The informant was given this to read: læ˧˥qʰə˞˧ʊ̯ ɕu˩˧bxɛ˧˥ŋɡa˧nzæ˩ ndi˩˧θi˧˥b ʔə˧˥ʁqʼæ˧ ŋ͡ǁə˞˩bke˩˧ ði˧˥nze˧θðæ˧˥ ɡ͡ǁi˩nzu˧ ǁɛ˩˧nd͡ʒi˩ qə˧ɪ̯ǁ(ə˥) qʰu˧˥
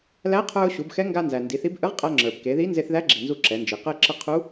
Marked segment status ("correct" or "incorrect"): incorrect